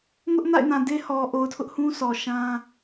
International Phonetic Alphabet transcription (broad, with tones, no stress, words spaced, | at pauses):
ŋʊ˦ʔna̰˦˨ɪ̯nã˨ de˦ hɔ˨ ʔo˨ʊ̯tʰʊ˦ʔhũ˦ sɔ˨ʃã˦